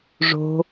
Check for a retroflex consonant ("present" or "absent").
present